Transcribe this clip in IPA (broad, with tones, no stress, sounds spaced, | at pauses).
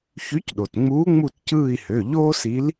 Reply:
ç y˨˥ c ɗ o˩ t ŋ͡m uː˨˥ ŋ͡m u˦˨ t c ɯː˦˨ i̯ h ø˩˧˩ ʎ oː˥ s i˨˥ l